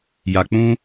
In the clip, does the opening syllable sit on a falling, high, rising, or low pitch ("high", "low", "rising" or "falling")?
low